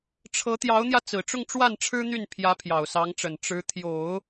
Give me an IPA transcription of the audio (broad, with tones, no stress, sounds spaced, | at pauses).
ʈ͡ʂʰ ɤ˧˥ t̪ j ɑ˧˥ ʊ̯ n̪ j ä˧ t͡s ɹ̩˨˩ ʈ͡ʂ ʊ˥˧ ŋ ʈ͡ʂ w a˥˩ n ʈ͡ʂʰ ɻ̩˥ n̪ y˥˩ n pʰ j ä˧˥ pʰ j ɑ˨˩ ʊ̯ s ɑ˧˥ ŋ ʈ͡ʂ ə˨˩ n ʈ͡ʂ ɻ̩˧˥ t̪ʰ j o˨˩˦ ʊ̯